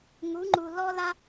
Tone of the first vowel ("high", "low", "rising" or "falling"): rising